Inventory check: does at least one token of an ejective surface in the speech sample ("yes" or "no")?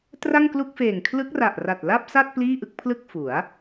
no